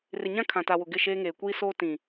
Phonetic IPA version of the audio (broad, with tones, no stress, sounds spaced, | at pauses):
r ɪ˨ ɲ ã˦ kʰ ã˨ t a˨ w ʊ˨ ɡ ɪ˦˨ ʃ eː˦ ŋ eː˨ kʷ iː˦ s oː˦ t ĩ˨